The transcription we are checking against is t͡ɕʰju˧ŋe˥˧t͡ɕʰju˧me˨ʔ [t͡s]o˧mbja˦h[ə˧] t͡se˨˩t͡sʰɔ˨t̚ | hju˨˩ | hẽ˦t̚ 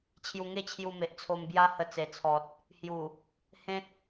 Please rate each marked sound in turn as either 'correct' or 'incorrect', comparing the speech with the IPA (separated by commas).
incorrect, correct